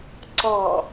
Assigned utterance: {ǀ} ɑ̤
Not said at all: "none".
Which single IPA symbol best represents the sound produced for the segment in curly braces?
ǀ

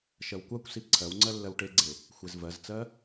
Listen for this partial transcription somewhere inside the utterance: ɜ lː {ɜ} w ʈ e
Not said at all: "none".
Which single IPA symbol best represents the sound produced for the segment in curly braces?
ɜ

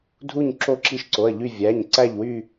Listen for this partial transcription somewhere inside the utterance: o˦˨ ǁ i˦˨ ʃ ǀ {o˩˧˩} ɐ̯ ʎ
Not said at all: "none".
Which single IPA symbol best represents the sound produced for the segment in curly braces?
o˩˧˩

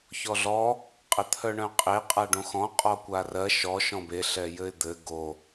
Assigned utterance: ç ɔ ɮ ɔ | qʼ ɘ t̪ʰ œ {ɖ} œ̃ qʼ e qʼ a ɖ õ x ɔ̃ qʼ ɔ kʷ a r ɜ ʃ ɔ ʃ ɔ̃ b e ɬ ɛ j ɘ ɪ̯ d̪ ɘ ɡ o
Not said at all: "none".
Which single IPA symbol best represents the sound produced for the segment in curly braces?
ɳ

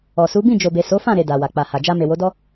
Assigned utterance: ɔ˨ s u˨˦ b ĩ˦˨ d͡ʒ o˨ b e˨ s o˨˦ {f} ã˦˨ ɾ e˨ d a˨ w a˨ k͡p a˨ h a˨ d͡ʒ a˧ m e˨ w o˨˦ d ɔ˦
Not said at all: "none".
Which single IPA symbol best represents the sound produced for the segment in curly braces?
f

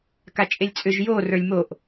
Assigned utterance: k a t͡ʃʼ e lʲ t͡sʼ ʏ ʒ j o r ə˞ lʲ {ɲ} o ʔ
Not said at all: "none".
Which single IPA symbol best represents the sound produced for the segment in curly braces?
m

